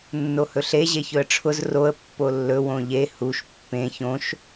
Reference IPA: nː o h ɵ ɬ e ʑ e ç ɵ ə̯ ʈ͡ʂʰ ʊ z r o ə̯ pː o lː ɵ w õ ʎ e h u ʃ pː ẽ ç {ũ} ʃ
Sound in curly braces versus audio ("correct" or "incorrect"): incorrect